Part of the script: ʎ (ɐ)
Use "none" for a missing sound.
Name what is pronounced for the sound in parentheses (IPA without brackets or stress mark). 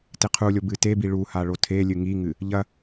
ɐ